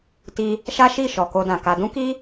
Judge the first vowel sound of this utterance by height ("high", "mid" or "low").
high